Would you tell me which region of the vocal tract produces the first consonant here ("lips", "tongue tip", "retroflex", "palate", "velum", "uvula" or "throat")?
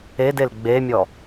tongue tip